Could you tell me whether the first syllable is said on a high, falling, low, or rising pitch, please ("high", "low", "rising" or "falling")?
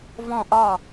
falling